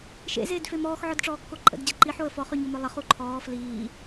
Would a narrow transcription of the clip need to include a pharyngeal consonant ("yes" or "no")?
yes